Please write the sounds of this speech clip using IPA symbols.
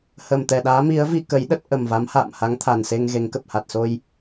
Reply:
h ə˨˩ m t̪ ɛ˨˩ ɗ aː˨˦ m i˨˦ ə̯ v i˧ k ə˨˦ j ɗ ə˦˥ t̚ ʔ ə˨˩ m v a˨˦ m h a̰ː˧˨ m h a˨˦ ŋ t̪ʰ a˨˩ n s e˧ ŋ ɣ e˨˦ ŋ k ə˨˩ p̚ h a˨˩ t̚ s o˧ j

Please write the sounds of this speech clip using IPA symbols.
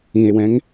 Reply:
ĩ e̯ w ɛ̃ ŋ

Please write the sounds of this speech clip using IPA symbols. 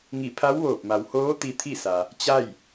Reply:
ŋ i˧˩ pʰ a˧˥ w ʋ oː˧˩ p̚ m a˩ w h oː˧˥ t̪ i˧ t̪ʰ i˥˨ s a˩ | t͡ɕ a˥˨ j

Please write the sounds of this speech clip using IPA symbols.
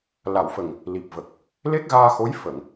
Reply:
l a˨˩˨ w f ə˨˩ ŋ | l i˨˩ p̚ v ə˨˩ k̚ | l e˦˥ k̚ ɣ aː˧ x o˧˥ j f ə˨˩˨ ŋ

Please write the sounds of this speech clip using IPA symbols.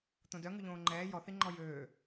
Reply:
t̪ õ d œ ŋ ʉ ʎ õː ŋ͡ǃ ɛː j ɔ θ i ŋ͡ǃ ɔ j øː

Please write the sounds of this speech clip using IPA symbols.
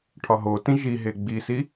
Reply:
ʈʰ ɒ ɦ o t ĩ ʒ i ɦ e ɡ͡b i s i

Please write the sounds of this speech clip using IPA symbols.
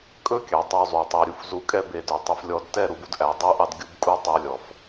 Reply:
kʼ ɵ˦ kʲ ɑ˨ tˤ o˧ zˤ y˨ tˤ e˨ ɾʲ u˨ f z u˧ kʼ ɛ˦ b e˨ d œ˨ tˤ ʉ˧ f lʲ ɔ˧ d t ɛ˦˨ ɾ u˧ b u˦ d ʔ æ˨˦ dˤ y˦ ʔ ɑ˦ d ɡʲ u˦ b kʼ u˦ tˤ œ˧ lʲ ɔ˨ f

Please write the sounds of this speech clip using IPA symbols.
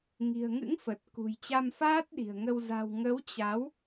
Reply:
ŋ i̤˨˩ ə̯ ŋ ɨ̰˧˥ ŋ f ə˨˩ t̚ k ṳ˨˩ j t͡ɕ a˧ m f aː˦˥ t̚ ɗ i̤˨˩ ə̯ ŋ ə˧ w z a̤˨˩ w ŋ ə˨˦ w t͡ɕ a˨˦ w

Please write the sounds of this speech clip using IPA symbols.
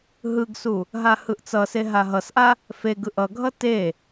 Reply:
ɦ ɯ ɡ s u | ɦ a h ɯ ʔ t͡s ʌ s e ɦ a ɦ ʌ s ʔ a | f e ɡ ɯ ʔ ʌ ɡʱ ʌ t e

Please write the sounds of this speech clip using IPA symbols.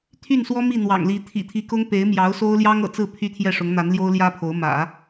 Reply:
t̪ʰ y˥˩ n s w ɔ˥ m i˥˩ n̪ w ɑ̰˨˩ ŋ l i˧˥ t̪ʰ ḭ˨˩ t̪ʰ i˧˥ k ʊ˥ ŋ p e˧˥ ɪ̯ m j ɑ˧˥ ʊ̯ s o˥ ʊ̯ l j ɑ˥ ŋ ɤ̰˨˩ t͡s ɹ̩˥˩ pʰ y˥ t̪ʰ j ɛ˥˩ ʂ ʊ˧˥ ŋ n̪ a˧˥ n l j o˥ ʊ̯ l j ä˥ pʰ o˧˥ ʊ̯ m ä̰˨˩˦

